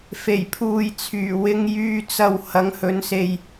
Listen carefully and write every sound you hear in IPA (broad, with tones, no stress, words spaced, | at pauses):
fe˨˩jpʰuː˨jt͡sʰyː˨˩wɪ˧ŋ jyː˧ t͡sɐ˨w hɐ˨˧ŋhɵ˨˥nse˨j